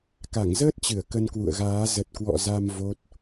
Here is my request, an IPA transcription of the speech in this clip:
k a˧˩ ŋ z əː˦˥ t̚ t͡ɕ ɨ˧˩ ə̯ k ə˧ n k w ṵ˧˨ ə̯ ɣ aː˨˦ z ə˨˩ t̚ k w ɔ̰˧˨ z a˧ m v o˦˥ t̚

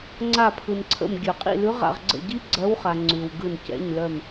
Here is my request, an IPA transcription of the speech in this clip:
ŋ͡ǀ a˦˨ pʰ ɯ˨ n ǀʰ ə̰˦˨ m ɡʲ œ˨˩˦ qʼ ḭ˦˨ l ʉ˧˥ ʁ a̰˦˨ ʁ ɡ͡ǀ ə̰˦˨ ɟ i˥ ɡ͡ǀ ɜ˧˥ w χ a˨ ŋ͡ǀ ʉ˨ w ɡ ɯ˦˨ n c ɛ̰˧˥˧ ɲ l œ˦˨ m

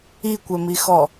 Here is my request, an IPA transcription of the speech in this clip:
i kʷ ɛ m i x ɔ

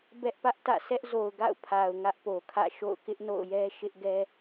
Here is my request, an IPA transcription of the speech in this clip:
b ɛ˦ ʔ p ä˦ ʔ t ä̰˦˨ s ɛ˦ ʔ z o˨ ʊ̯ ɡ a̰˦˨ ʊ̯ pʰ a˨ ʊ̯ ŋ ä˦ ʔ p o˨ kʰ ä̰˦˨ ʃ o̰˦˨ ʊ̯ k ɪ˦ ʔ n o̰˦˨ ʊ̯ j ɛ˦ ʃ ɪ˦ ʔ ɡ ɛ˦

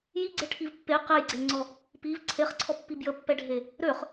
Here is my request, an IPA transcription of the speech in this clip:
j i ɡ͡ǀ e ʈʰ i v pː e q e j ɡ͡ǀ e ŋ͡ǀ ɔ | p i v ǀʰ e χ ǀʰ ɔ pː i b j ə pː ɛ ɖʱ e | ɾ ø χ

